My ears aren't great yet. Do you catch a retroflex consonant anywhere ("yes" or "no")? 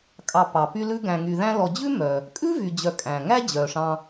yes